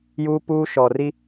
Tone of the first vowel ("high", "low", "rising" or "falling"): high